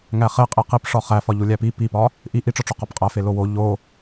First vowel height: low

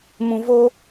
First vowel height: high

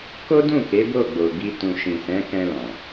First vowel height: mid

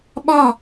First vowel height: low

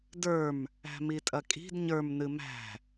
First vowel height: mid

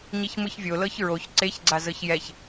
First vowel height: high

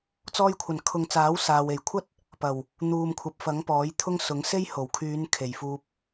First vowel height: mid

